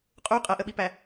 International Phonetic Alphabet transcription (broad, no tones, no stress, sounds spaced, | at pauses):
qʼ u qʼ ɐ ʔ ə ɓ i p æ